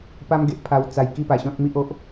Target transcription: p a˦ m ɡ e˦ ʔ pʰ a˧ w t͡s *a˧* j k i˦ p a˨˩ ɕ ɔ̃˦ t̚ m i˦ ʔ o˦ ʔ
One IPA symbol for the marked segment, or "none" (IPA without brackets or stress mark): a˧